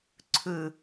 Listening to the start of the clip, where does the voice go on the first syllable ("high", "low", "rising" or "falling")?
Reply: low